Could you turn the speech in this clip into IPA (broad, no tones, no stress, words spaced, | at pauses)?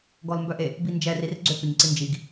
ɡɔlmbœʔe | bind͡ʒɛ rirɡ͡ǀʏkʏɲǀi nd͡ʒiɡ